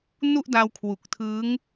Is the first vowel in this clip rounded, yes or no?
yes